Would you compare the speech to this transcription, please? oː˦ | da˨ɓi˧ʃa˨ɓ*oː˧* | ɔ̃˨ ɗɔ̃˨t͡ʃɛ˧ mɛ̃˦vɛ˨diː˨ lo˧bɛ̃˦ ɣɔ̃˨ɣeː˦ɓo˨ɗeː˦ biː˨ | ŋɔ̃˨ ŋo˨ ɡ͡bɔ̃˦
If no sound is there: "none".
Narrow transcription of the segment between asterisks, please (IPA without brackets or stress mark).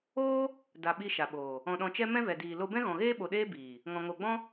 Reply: oː˨